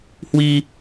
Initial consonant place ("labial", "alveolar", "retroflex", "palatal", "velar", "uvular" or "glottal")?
glottal